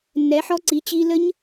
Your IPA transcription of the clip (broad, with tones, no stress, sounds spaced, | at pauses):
nː ɛ˨˥ ħ ɔ˦˥ ǀ i˨˥ t͡ɕ i˦˥ l ə˦˥ ɲ